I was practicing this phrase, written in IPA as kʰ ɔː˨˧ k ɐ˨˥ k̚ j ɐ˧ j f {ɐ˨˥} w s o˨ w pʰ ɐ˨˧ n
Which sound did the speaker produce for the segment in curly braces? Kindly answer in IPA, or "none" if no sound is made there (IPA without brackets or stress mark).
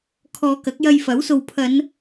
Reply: ɐ˨˥